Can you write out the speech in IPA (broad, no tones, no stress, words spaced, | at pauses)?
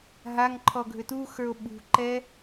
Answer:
ɦaŋǃʰɔ ɡʱʏtuxə˞o̯ ɓṳǃɛ